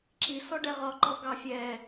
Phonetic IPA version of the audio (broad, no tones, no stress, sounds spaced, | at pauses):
ǁ i s ɔ ɖ ɛ ʁ ɒ ǃ ɔ ɡ ɑ fʲ ɛ